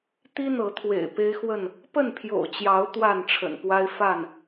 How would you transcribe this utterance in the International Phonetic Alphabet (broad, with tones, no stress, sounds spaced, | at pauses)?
t̪ i˦ n̪ ɤ˨˦ t̪ʰ w ḛ˨˩ ɪ̯ p e˦ ɪ̯ x w ə˥˨ n | p ə˥˨ n pʰ j o̰˨˩ ʊ̯ t͡ɕ j ɑ˨˦ ʊ̯ t̪ w a˥˨ n ʈ͡ʂʰ ə̰˨˩ n p w a˦ ɪ̯ f a˥˨ n